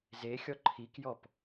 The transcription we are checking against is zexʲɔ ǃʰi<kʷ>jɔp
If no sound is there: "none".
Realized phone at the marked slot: k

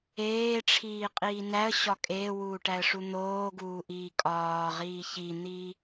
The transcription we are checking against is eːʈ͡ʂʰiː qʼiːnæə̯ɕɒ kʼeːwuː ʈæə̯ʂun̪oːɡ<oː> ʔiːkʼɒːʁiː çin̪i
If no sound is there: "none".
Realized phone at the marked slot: uː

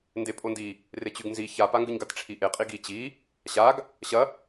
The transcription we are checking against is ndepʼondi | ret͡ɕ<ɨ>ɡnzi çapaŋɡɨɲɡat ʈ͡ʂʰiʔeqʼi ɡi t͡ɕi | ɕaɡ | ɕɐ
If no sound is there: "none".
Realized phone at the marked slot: ʉ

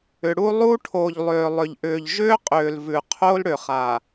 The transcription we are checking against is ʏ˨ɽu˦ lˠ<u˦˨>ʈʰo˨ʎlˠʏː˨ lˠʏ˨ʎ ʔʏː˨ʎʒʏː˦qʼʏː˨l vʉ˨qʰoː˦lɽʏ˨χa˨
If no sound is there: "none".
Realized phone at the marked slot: u˦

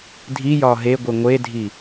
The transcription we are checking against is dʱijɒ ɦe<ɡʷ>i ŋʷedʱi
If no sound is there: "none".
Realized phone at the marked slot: ɡʷ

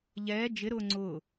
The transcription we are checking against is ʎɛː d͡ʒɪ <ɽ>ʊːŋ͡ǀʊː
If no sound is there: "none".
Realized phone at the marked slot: ɾ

